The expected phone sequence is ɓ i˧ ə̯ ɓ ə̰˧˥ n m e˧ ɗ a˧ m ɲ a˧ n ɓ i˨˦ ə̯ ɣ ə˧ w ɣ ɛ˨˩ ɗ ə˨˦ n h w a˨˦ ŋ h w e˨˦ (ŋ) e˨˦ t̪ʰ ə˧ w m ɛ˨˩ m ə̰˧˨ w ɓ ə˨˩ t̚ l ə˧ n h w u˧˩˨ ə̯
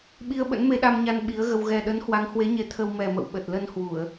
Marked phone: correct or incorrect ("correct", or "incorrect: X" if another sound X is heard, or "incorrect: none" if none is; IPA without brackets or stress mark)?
incorrect: ɲ